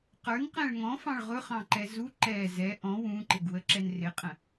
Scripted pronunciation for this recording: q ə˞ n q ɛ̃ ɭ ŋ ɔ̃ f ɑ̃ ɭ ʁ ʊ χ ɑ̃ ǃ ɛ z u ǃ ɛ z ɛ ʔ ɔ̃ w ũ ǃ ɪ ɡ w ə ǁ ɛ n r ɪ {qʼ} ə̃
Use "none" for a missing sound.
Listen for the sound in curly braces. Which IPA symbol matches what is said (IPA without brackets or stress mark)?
qʼ